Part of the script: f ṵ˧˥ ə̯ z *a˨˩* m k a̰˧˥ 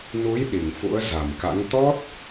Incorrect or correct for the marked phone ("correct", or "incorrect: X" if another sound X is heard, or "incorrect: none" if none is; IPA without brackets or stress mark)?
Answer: correct